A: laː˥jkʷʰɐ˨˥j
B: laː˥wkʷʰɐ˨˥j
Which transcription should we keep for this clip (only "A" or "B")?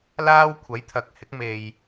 B